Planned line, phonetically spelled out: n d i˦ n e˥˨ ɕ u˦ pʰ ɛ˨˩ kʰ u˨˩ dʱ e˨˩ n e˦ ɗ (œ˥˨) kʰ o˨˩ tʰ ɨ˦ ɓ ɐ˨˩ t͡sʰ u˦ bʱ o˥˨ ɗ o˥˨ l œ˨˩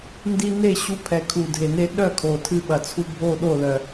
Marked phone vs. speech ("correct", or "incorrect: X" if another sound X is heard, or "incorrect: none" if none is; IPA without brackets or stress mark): correct